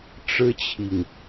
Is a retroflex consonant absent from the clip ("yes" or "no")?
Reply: no